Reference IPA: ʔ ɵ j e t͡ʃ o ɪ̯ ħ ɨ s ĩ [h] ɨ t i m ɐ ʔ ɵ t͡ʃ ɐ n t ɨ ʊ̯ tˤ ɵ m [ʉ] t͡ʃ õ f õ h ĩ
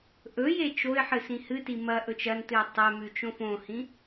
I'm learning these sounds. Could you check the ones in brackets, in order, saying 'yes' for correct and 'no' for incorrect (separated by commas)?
yes, yes